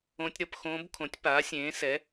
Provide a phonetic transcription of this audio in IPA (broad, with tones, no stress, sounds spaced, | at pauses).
õ˦˥ tʲ ɾ ʌ˨˦ p x õː˦˥ b kʰ õ˨˦ tʲ p aː˨˦ sʲ ẽː˨˦ s ɛ˨˦